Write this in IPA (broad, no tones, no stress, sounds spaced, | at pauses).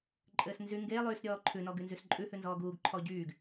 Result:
ǃʼ ɘː s n z y ŋ ɡ eː lˠ yː s ɾʲ ɔː ǃʰ ʉ n ɔ ɡ y n z y s ǃʼ ʉ h ʉ n z ɔː ɡ uː ɡ ǃʰ ɔ ɟ yː ɡ